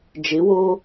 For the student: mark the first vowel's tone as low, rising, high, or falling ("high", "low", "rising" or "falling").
rising